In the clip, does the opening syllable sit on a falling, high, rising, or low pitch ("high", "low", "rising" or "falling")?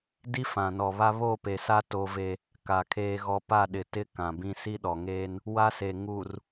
high